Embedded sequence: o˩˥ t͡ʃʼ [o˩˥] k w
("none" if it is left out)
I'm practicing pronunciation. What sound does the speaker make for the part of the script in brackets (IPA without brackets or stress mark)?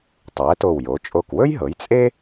o˧˩